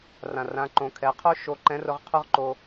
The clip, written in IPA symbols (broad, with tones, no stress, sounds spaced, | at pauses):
r ã˩ r ã˩˧ ǃ õ˩˧ kʰ ɛ˩˧ qʰ o˥ ʃ o˧ ǃ ɛ̃˧˥ r ʊ˧ ʁ qʰ ʊ˥ ʁ ǃ o˧